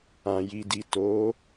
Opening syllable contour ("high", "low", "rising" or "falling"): low